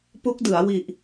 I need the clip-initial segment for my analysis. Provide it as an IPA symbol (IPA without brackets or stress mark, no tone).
p